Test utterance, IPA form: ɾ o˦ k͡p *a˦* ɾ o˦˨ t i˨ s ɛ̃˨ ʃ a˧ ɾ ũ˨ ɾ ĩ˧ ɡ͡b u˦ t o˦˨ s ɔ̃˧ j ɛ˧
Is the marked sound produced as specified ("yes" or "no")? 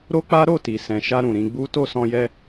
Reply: yes